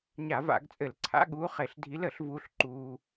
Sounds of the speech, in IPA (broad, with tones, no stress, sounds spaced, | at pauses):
ɲ a˧˩˧ v a̰˧˩˧ ɡ t͡sʼ ɘ˧˩˧ l ǀʰ a̰˧˥ ɠ uː˧˥ χ e˧˩˧ ɬ dʱ i˧˥ l ə˧˩˧ ɬ v uː˧ ɬ ǃ uː˧